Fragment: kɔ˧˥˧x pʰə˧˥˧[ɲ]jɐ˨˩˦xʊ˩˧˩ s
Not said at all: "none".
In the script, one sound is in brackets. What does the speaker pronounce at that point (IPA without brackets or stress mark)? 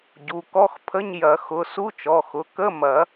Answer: ɲ